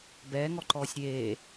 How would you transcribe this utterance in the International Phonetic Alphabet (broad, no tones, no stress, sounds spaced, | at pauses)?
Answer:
b ɛː ŋ ɔ ǃ ɔː sʲ ɾʲ eː